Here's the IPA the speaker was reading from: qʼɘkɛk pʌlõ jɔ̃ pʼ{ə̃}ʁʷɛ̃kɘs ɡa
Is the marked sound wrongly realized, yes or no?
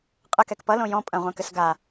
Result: yes